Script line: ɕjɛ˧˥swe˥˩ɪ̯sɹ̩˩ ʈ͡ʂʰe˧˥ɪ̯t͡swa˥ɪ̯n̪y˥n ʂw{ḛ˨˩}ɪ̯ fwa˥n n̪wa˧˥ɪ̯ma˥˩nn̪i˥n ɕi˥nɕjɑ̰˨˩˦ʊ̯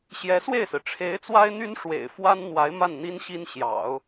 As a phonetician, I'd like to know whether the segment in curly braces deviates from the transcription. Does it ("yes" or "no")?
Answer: no